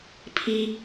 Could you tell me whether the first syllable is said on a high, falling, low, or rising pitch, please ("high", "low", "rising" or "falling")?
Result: low